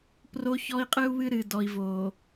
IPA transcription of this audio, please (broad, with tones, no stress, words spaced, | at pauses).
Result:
pro˦çɔ˦i̯qʼɨ˦u̯βɨ˦ ɾɨ˨ dɔ˨i̯vo˨